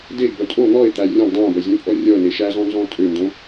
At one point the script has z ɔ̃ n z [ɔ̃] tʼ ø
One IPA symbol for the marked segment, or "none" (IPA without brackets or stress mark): ɔ̃